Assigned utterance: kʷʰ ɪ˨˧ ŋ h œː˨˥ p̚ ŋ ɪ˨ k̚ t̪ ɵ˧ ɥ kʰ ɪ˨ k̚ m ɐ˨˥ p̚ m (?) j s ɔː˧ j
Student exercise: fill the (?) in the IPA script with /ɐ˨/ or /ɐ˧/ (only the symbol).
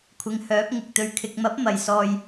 ɐ˨